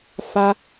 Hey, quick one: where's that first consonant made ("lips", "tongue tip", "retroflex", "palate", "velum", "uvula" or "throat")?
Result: lips